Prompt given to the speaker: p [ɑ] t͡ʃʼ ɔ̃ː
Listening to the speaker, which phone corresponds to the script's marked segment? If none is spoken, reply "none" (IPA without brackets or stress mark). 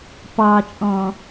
ɑ